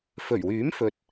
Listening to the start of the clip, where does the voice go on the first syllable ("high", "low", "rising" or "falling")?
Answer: low